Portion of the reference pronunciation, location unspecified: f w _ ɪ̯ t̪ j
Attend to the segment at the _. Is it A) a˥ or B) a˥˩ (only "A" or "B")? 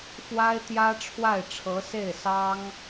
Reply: A